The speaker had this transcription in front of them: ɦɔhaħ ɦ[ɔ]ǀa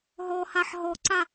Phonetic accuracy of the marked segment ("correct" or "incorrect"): correct